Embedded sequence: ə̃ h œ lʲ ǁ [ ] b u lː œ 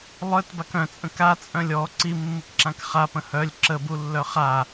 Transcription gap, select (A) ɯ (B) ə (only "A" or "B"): B